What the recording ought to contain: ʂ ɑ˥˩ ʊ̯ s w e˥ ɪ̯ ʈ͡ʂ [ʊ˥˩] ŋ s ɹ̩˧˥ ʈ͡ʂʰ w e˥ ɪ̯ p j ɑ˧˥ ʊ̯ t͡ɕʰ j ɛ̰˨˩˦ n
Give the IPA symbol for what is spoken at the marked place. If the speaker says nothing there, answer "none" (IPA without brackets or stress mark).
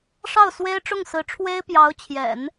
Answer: ʊ˥˩